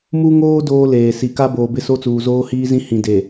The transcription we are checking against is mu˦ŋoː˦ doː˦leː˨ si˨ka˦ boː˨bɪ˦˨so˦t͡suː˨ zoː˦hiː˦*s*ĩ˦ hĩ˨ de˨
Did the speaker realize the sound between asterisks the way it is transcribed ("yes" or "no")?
no